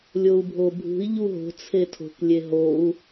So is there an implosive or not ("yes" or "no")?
no